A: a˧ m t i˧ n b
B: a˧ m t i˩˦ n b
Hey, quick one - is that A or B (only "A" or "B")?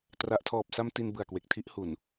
A